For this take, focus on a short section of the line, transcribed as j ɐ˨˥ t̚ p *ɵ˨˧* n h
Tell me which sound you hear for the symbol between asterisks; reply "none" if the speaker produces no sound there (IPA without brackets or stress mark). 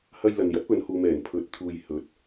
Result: ɵ˨˧